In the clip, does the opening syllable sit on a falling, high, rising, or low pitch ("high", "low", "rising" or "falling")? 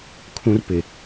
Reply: high